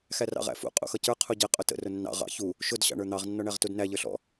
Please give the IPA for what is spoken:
xærɑ̰ʁæ̰fṵ qʼṵxʌcə˞ qʰuɟɪ qʼʊtə̰ rʊnːɑ̰ ʁɑ̰ çu | ʃʊd ɕɑ̰ɳə˞n̪ɑʁ nːɔɳæʁtudnæ ʎə˞ɬɔ̰

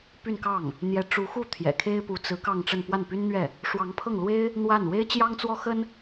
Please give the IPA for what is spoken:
py˥˧nkɑ˥˩ŋ | n̪jɛ˧˥ ʈ͡ʂu˧˥xu˥˩ t̪ʰjɛ̰˨˩kʰe˥ɪ̯pu˧˥ t͡sɹ̩˧˥ kɑ˥˧ŋʈ͡ʂə˥˧n pwa˥˩npy˥nn̪ɥɛ˥˩ | ʂwɑ˧˥ŋpʰɤ˥˩ŋlwe˥ɪ̯ | n̪wa˥˩n we˥ɪ̯t͡ɕjɑ˥ŋt͡swɔ˥xə˥n

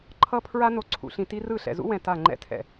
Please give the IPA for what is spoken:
ǃʰʌ˦pʰɹa˦ no˨ǀʰṵ˨ɬĩ˨ti˦ rɯ˦˨ɬɛ̰˨ zṵ˦wɛ̃˨ ta˦˨ ŋ͡ǃɛ̰˦tʰɛ̰˨

